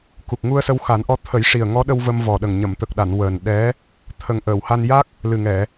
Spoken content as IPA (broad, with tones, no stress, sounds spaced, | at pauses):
k u˨˩ k̚ ŋ u˧ ə̯ s ə˧ w x a˨˩˦ n ʔ ɔ˧˥ t̪ʰ ə˨˩˦ j ʂ i˨˩ ə̯ ŋ ɔ˧˥ ɗ ə˧ w v ə˧ m v ɔ˨˩ ɗ ə˨˩ ŋ ɲ ə˨˩˨ m t̪ ə˨˩ k̚ ɗ a˨˩˨ n w əː˨˩ n ɗ ɛ˧˥ | t̪ʰ ə˨˩ ŋ ʔ əː˨˩˨ w h a˧ n j a˦˥ k̚ | l ɨ˨˩ ŋ ɛ˨˩˨